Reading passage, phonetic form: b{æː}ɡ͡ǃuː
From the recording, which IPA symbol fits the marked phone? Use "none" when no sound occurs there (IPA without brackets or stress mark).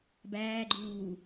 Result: æː